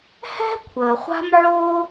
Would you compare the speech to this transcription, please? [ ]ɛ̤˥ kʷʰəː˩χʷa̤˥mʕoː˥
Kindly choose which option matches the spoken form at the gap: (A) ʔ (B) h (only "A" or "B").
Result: B